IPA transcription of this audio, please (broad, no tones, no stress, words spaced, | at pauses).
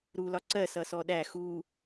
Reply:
ɾu lɒǀɜ sʌsɔɗæ xu